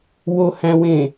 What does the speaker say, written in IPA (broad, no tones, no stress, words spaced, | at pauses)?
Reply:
wohæ̃wẽ